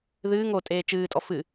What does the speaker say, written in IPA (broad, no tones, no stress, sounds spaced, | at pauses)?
ð ɨː ŋ o tʼ eː t͡ʃ ɨː tʼ ɔ f ɨ